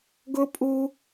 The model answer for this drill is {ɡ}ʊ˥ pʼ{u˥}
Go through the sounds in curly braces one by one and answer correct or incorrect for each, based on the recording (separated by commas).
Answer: correct, correct